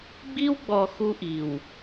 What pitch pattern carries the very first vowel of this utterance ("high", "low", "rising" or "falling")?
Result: high